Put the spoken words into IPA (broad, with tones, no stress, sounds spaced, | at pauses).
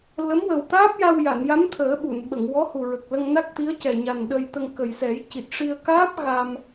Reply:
l ə˧˥ m w ə˨˩ w t̪ aː˦˥ p̚ j a˧ w j a˨˩˨ n j a˧˥ m t̪ʰ əː˨˩˦ ɓ u˨˩˨ n ɓ ə˨˩˨ ŋ w ɔ˧˥ h u˨˩ ɹ ə˨˩ k̚ l ə˧ ŋ n a˦˥ k̚ t̪ i˧˥ ə̯ c ɛ˨˩ ɲ a˨˩ n ɗ ə˧ j t̪ ə˧ ŋ k ə˨˩ j s ɛ˨˩˦ j c i˨˩ t̚ ʂ i˧ ə̯ k aː˦˥ p̚ ɣ a˧ m